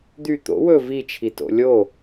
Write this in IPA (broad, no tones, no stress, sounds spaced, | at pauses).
d̪ y t̪ o̰ w ɵ v i t͡ʃʰ i t o̰ lʲ o